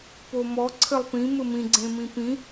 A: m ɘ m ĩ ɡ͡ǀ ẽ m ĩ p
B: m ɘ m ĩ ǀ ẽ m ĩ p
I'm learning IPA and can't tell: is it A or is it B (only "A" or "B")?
A